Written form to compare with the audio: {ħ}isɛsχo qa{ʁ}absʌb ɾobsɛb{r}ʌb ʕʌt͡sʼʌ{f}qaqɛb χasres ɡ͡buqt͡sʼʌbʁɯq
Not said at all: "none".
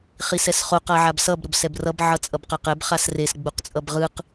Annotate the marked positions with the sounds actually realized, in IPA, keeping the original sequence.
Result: χ, ʕ, r, b

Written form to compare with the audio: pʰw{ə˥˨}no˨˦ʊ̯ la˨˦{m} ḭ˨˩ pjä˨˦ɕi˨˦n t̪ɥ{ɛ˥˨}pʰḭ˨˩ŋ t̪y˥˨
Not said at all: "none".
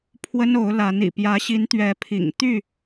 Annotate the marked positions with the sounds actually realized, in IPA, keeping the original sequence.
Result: ə˦, n, ɛ˨˦

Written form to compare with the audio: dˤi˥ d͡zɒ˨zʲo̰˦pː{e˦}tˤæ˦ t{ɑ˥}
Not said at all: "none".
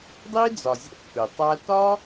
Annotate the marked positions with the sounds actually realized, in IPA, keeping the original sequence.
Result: e˩, ɒ˥

